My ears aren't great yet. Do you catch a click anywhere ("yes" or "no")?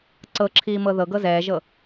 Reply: yes